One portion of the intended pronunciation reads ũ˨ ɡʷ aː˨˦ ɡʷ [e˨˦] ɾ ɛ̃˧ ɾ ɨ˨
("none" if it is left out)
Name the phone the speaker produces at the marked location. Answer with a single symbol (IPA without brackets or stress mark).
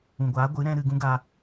ɨ˨˦